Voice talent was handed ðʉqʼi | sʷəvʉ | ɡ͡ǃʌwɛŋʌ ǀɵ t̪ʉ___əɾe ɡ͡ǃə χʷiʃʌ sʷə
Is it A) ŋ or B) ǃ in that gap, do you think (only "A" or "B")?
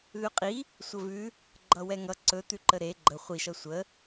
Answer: B